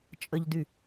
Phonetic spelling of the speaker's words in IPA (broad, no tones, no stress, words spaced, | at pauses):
t͡ʃʼəʎdy